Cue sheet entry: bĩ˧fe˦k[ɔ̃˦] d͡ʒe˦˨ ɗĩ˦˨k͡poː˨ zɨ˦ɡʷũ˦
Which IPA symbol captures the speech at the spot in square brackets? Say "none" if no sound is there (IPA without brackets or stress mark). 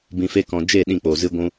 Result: ɔ̃˧